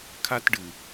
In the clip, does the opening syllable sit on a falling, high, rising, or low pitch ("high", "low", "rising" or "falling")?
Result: high